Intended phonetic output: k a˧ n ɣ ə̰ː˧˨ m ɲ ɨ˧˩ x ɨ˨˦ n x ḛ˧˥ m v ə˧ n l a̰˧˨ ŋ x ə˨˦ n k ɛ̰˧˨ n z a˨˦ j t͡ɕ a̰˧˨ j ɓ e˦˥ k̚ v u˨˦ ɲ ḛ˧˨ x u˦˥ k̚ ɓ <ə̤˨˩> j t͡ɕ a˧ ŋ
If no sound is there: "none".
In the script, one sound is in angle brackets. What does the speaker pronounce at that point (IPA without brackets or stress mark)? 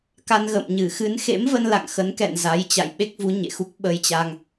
ə˧